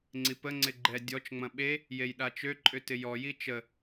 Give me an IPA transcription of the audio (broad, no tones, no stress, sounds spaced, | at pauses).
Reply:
ŋ͡ǀ i p ə ŋ͡ǀ ɪ ɡ͡ǃ ɛ dʲ ɔ t͡ʃ ŋ͡m ɐ̃ ɓ e | j e j ɗ a t͡ʃ ø ǃʼ ʏ t ɪ j ɔ j i t͡ʃ ə